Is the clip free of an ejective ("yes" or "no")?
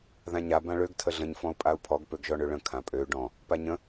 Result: no